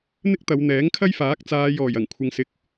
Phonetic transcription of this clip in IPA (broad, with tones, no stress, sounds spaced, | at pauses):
n̪ ɪ˥ k̚ t̪ ɐ˨˧ w n̪ ɛː˨˥ ŋ kʰ ɐ˥ j f aː˨˥ k̚ t͡s aː˨˧ j ɔː˨˩ j ɐ˨˩ ŋ kʷʰ ɪ˨ ŋ s ɪ˨ k̚